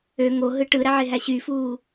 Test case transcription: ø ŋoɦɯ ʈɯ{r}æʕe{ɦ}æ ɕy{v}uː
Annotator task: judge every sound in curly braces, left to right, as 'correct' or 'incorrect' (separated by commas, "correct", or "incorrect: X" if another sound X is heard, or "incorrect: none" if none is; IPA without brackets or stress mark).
incorrect: ɾ, correct, incorrect: f